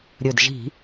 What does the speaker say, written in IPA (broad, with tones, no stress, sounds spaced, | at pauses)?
ɾʲ ɵ˨˩ d ʒ i̤˧˩˧